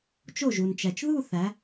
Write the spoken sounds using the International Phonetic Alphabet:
t͡ʃ o˥˩ ʒ u˩ n t͡ʃ æ˩ t͡ʃ ð u˥˧ θ æ˩˧

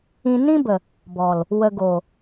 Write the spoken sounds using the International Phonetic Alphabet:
ĩ˧ n ĩ˦ b ə˨ | b ɔ˨ l | w ə˨ ɡ o˨

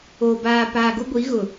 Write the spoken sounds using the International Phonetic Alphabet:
o˨ b aː˨ p aː˨ ɡ ʊ˦ ɡʷ i˨˦ ɣ ʊ˨

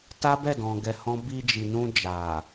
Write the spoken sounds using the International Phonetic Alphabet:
t a˦ b ɛ˦˨ d ɔ̃˨ ɡ ɛ˧ h ɔ̃˦ b i˧ d͡ʒ i˨ n ũ˧ d͡ʒ a˨

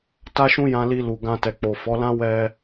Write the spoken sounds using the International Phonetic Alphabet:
t a˦ ʃ ũ˦ j ã˧ l i˧ l u˨ ɡ ã˧ t ɛ˨ k͡p o˨ f ɔ˨˦ l ã˦ w ɛ˧

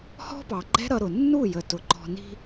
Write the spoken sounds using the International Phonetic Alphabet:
h ɔ̤˦ p ɑ˨ ɡ͡ǃ ɛ̤˦ ɾ ʌ˧ ɾ ʊ˨ nː u˦˨ j ə˨ t ʊ˨ ǃ ɔ̤˧ n i̤˦

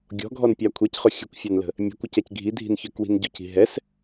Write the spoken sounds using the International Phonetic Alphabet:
ɡʲ ɔ̤ ɡʱ ɔ n pʲ ɑ kʷʰ ɛ c χ ʊ xʲ ə kʷ fʲ ɑ n l ə̤ | mʲ ɛ̤ kʷ ə c ɛ c ɡʱ i dʱ i̤ n ç ə˞ k w i̤ n ɟ ʊ c i̤ ɦ ɛ s

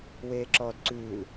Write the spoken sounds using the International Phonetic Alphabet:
w eː ǁ ɔː d ǀ ʉː l

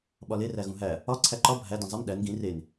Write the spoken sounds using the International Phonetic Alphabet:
ɓ ɒ l e r æ ɣ ũ ɦ æ | ɒ ǀʰ æ ǃ ɒ bʱ æ d ĩ zˤ i m ɗ æ n ɡ ĩ r e n

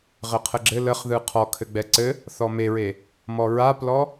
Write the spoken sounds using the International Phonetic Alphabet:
ʁ ɘ qʰ ə ɡ͡ǁ ɘ l ə χ ð ɯ qʰ ɔ kʰ ɘ ɡ͡b ɛ ǀ ɘ | θ ɔ m e ɹ e | m ɔ ɹ a p l ɔ

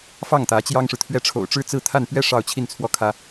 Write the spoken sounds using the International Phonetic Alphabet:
f ɑ˥˩ ŋ t̪ ä˧˥ t͡ɕ j ɑ˥ ŋ ʂ ɻ̩˨ t̪ʰ ɥ ɛ˥˩ ʈ͡ʂʰ o̰˨˩ ʊ̯ ʈ͡ʂ ɻ̩˥˧ t͡s ɹ̩˥˧ t̪ʰ a˥˧ n p ɥ ɛ˥˧ ʂ ɑ˥˧ ʊ̯ t͡ɕʰ i˥˩ n t͡sʰ w ɔ˥ kʰ ä˥

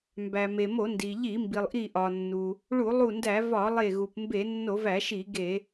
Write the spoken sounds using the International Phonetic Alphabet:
m b æ˩ m e˩ m o˧˩˧ n d i˩ ʎ i˧˩˧ m b i˩ lˠ ʔ i˧˩ ʔ ɒ˩ nː u˩ | ɭ u˧˩˧ lˠ u˧˩ n d æ˧˩˧ v ɒ˧˩˧ lˠ e˧˩ ɣ u˩ p m b e˧˩˧ nː o˧˩˧ v æ˧˩˧ ʃ i˧˩˧ ɡ e˧˩˧

